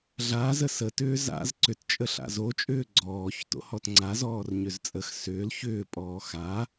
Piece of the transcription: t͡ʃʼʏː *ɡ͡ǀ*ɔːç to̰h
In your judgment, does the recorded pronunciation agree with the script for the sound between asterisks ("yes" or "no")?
yes